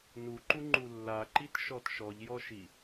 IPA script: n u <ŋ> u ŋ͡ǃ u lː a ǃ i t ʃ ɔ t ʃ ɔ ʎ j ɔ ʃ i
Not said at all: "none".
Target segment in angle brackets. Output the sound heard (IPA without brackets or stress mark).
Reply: ǃ